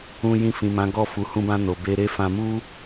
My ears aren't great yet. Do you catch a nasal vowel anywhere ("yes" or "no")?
yes